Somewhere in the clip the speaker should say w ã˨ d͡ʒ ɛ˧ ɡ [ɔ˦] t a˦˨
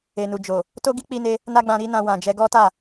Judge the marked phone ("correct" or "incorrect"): correct